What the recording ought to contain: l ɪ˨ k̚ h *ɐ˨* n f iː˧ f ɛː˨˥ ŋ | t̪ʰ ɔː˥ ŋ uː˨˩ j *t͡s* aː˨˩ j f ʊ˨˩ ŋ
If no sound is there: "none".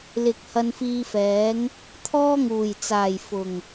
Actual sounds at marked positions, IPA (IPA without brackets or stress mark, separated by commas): ɐ˧, t͡s